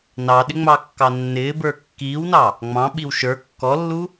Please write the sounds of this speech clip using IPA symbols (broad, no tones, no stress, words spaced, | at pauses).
nɑɗɪŋ͡mɑkːɑ nːɪːbə˞ kːiːwnɑ | ŋ͡mɑ̃ɓiw ʃə˞ kːɔlːu